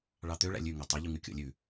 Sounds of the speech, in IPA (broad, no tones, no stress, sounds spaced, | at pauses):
ɭ ɑ t̪ ø ɭ æ̰ lʲ ʉ ŋ e tˤ ʉ ʎ u ŋ ʉ kʲ o̰ lʲ ʉ